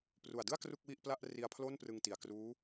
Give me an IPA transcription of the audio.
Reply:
p r u˨˩ a̯ d ɯ˥˩ a̯ k r u˥˩ k̚ w i˥˩ ʔ p l a˥˩ ʔ r i˧ a̯ pʰ l o˥˩ n p r ɯ˧ ŋ t i˨˩ a̯ k r uː˦˥

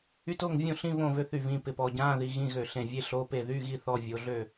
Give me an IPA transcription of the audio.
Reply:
y˧˥˧ t o˥˨ ŋ vʲ õ˥˨ ɬ ĩ˧˥˧ β õ˥˨ v ø˧˥˧ θ y˧˩ v ĩ˨˦ p ɪ˨˦ p ɔ˨˦ ɟ ã˧˥˧ ð i˨˦ ɣ ĩ˧˥˧ ɣ ø˧˩ ɬ ẽ˧˩ vʲ e˧˥˧ ɬ o˧˥˧ p e˥˨ ð y˧˥˧ ɣ i˥˨ θ ɔ˧˥˧ vʲ o˨˦ ɮ ø˥˨

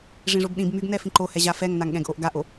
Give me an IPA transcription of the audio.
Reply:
ʐ ĩ ʐ o b ɗ ĩ b m y ɡ n ɛ f ĩ ǃ o h ɛ ʑ a f ɛ ŋ n a ŋ ɠ ɛ̃ ɡ ʔ o ʔ ɡ a ʔ o

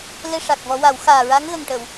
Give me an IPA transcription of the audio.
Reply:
l e˧ ʂ a˨˩ k̚ v ɔ˨˩˦ w a˨˩˦ w x aː˨˩ ɹ a˧˥ ŋ ɣ ə˨˩ ŋ ʈ ə˨˩˨ w

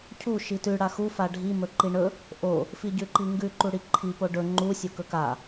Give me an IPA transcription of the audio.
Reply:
cʰ u ʃ i t ʉ ɽ a x u f a ɖʱ i m ɵ ǃ i ɳ ɵ | ʔ o | f i ɟ ʉ ǃ i ŋ ɡ ʉ ǃ u ɽ i ǃʰ i p o ɖ ɵ ŋ͡ǃ u sʲ o k ɵ k a

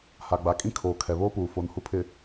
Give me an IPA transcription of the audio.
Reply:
h a˨ ɡ͡b a˨ kʼ ĩ˦ kʰ oː˨ kʰ ɛ˨ β oː˦ p uː˨ f o˨˦ n h u˨ pʰ ɪ˨

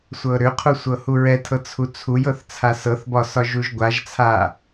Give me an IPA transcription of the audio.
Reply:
sʷ ɤ ɾ ʏ qʰ u sʷ ɤ h u ɹ ɛ tʰ ɤ t͡sʰ u t͡sʰ u j ɤ θ t͡sʰ a s ɤ θ b ɒ s ɒ ʒ u ʒ ɡʷ a ʒ t͡sʰ a

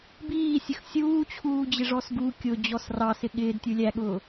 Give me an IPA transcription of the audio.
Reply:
b iː sʲ ə x sʲ uː t͡ɕʰ uː d͡ʑ ɪ ʐ ɔ s ɡ u kʲ ʊ d͡ʑ ɔ s r ɑ s ɪ ɠ ɪː d tʲ u lʲ æ ɠ ʊː

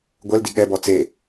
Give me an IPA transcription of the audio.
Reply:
ɡʷ ɛ l d i ɠ ɛ b ɔ t͡s e

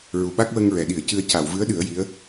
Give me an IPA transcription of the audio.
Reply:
ɹ u˨˩˨ ɓ a˦˥ k̚ w ə˧ ŋ ɹ ɛ˨˩˨ ɗ i˨˩˦ ə̯ c ɨ˧ ə̯ c a˨˩˨ w v ɨ˧˥ ə̯ ɗ ɨ˨˩˦ ə̯ j i˧˥ ə̯

